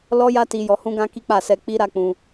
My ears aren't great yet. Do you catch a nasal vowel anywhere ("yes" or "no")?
yes